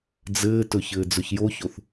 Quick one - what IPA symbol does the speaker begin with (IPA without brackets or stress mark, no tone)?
d͡z